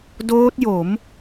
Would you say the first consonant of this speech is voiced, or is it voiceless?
voiced